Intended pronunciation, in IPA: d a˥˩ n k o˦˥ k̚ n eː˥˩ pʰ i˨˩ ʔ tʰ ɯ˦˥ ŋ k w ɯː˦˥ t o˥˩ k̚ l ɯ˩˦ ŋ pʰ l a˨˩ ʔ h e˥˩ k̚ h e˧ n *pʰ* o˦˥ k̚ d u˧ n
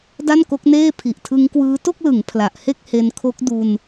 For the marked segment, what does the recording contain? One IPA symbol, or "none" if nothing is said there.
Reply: kʰ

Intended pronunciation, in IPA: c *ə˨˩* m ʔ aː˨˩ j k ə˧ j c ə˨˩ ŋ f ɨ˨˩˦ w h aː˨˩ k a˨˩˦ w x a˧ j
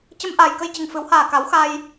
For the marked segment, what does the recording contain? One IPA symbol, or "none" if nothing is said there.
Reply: ə˧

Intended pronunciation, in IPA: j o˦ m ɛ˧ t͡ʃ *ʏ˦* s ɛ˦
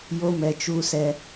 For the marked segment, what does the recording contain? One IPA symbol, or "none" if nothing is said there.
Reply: u˦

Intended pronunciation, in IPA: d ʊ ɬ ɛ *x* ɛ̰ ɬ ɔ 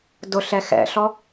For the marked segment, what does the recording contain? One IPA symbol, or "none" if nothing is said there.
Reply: x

